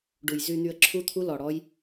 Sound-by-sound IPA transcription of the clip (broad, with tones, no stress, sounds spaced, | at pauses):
ɖ u˨ j z y˨ n̪ y˨ ə̯ ǁʰ u˦ t̪ʰ u˦ l ɔ˨ ɽ ɔ˦ j